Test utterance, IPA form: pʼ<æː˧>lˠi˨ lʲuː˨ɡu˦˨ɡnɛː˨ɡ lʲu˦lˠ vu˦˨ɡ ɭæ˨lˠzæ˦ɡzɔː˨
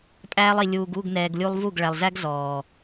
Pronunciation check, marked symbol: correct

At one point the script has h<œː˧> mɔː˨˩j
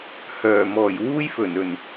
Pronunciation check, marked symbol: incorrect: œː˨˩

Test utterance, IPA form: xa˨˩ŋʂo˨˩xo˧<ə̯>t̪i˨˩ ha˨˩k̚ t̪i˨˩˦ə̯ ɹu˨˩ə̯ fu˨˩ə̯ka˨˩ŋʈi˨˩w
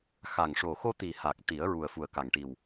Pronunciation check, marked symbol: incorrect: none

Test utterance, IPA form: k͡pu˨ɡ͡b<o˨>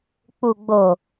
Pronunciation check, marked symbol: correct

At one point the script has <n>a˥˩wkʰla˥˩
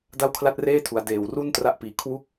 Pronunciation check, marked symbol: incorrect: d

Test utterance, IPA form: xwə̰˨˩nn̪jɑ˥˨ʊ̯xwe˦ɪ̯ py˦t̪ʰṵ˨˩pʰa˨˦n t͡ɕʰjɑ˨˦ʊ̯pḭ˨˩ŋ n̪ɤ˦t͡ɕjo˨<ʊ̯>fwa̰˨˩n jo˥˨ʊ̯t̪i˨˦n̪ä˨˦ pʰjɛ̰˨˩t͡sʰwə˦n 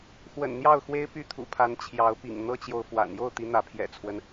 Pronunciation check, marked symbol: correct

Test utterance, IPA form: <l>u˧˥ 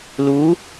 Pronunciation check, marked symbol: correct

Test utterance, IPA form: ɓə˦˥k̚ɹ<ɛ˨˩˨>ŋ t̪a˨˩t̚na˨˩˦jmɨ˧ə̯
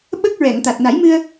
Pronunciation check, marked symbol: correct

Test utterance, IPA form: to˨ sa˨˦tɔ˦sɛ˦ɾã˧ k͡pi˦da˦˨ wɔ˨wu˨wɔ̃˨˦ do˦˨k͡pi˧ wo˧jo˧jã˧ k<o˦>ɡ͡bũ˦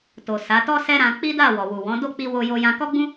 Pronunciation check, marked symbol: incorrect: ɔ˦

